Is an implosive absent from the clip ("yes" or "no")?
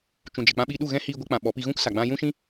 no